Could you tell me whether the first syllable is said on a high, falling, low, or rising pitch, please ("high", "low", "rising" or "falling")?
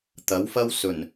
rising